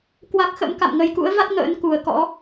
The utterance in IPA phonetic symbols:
kwa˦˥k̚xə̰˧˥m ka̰˧˨mŋə˨˩jkṵ˧˥ə̯va˦˥t̚ ŋə̰ː˧˥nku˨˩ə̯kɔ̰˧˥

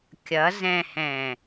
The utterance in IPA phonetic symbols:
kʲʌzɛ̃hɛ̃

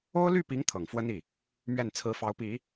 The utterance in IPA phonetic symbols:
o˥ʊ̯ ly˥˩pi˧˥ŋ t̪ʰɤ˨˩ŋfwə˥ni˥˩ | mɥɛ˥˩nt͡sʰɹ̩˧˥fɑ˧˥ʊ̯pi˨˩˦

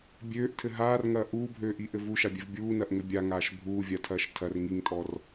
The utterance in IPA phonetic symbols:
bʲøːʔtʰɘ ɦaːrŋɐː ʔuːbʱøːʔiʔɘ vuʃabʲɛv bʲuːnɐʔŋɘ bʲaŋaːʃ bʱuːvʲatʰɐːʃ tʰɐr ŋiŋtʼɔr

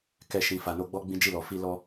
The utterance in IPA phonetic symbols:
kɛ˧ ʃĩ˨fa˨no˧ ɡ͡bɔ˦ɡ͡bĩ˦d͡ʒi˦˨lɔ˨ fi˧ lɔ˧

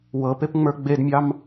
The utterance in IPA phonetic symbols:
wɤpepŋ͡mə˞ ɡ͡bedmʲɑm

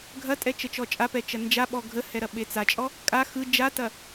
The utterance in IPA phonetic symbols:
ɡʱɐtʼɛ t͡ʃət͡ʃɔt͡ʃʼapɛ t͡ʃɐnd͡ʒaɓɔ ɡʱəhɛ ɾɐɓet͡sat͡ʃʼɔ | kʼa xɯ d͡ʒatɐ

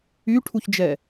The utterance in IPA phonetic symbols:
yʈʰuçd͡ʒɛ

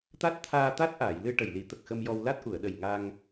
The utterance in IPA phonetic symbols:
t̪a˦˥t̚t̪ʰaː˧ t̪a˦˥t̚ʔaː˨˩˨j lɨ˧ʈə˨˩jli˨˩˦t̪ə˨˩k̚ xə˧mjɔ˧w la˦˥t̚ʔu˨˩˨ə̯ɗə˨˩j ŋa˧ŋ

